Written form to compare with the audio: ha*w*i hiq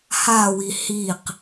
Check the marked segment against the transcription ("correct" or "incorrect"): correct